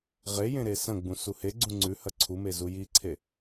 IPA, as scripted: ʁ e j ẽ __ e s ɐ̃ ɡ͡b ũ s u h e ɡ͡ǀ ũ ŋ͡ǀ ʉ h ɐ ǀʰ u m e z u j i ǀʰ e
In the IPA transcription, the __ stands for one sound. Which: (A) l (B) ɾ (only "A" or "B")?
B